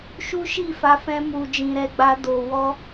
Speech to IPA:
ʃ u˦ ʃ i˦˨ f a˧ f ɛ̃˧ m u˨ d͡ʒ ĩ˨ ɾ ɛ˧ ɡ͡b a˧ d o˨ w ɔ˧

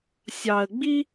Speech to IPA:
sʲ ɑ˨ ə̯ ɡ͡b i˦

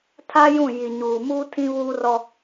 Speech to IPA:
tʰ a˦ j ũ˦˨ j i˨ ɲ uː˨ m uː˦ tʰ ĩ˦ β uː˦ r ɔ˦

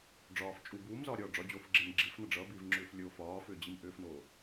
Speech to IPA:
ɖ͡ʐ ɒː f t͡ʃʼ u b uː m z ɒː ɾʲ ɒː ɖ͡ʐ ɒ d͡ʑ oː f ɡ͡ǁ e m ɡ͡ǁ i f n ʌ ɖ͡ʐ ʌ b iː v ŋ͡ǁ ʏː f lʲ o f ɒː f ʏː d͡ʑ i m ʔ ʏː f n oː

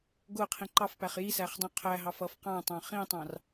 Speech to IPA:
ɡ ʊ qʰ ĩ ǃ ɑ f p æ χ j i s æ χ dˤ ũ qʰ æ ɦ ɑ f ʌ f q ɑ̃ tˤ ɑ̃ χ ĩ tˤ ɑ̃ r

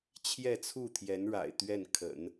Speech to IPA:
t͡ɕʰ j ɛ˥˧ t͡sʰ u˥˩ t̪ʰ j ɛ˧˥ n ɻ a̰˨˩ ɪ̯ t̪ ɥ ɛ˥˩ n kʰ ə̰˨˩˦ n

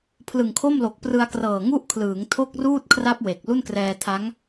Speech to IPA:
pʰ l ɯ˨˩ ŋ kʰ o˥˩ m l o˨˩ k̚ p r ɯ˧ a̯ k r ɤː˨˩ ŋ u˥˩ ʔ kʰ l ɯː˩˦ ŋ tʰ o˥˩ k̚ r uː˥˩ t̚ kʰ r a˦˥ p̚ w e˨˩ k̚ l u˥˩ n k r ɛː˧ tʰ a˦˥ ŋ

